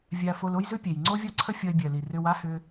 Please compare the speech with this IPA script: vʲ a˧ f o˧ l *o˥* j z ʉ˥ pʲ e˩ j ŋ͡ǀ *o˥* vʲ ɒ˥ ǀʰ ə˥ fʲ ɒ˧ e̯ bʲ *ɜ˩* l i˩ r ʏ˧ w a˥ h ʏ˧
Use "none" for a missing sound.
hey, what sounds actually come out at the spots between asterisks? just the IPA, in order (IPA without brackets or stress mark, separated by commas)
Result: o˥, o˥, ɜ˩